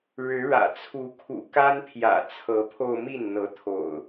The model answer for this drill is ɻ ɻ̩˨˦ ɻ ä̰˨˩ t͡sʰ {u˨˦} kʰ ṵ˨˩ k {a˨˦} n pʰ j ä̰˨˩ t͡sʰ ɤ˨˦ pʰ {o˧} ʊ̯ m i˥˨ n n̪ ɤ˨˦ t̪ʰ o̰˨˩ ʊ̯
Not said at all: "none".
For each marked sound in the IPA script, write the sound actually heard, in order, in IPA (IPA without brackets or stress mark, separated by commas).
u˨˦, a˦, o˧